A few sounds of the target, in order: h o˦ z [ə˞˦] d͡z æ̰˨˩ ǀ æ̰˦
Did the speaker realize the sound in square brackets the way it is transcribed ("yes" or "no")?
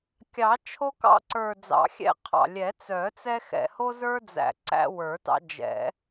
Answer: yes